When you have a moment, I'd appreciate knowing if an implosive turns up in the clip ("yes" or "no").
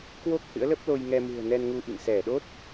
yes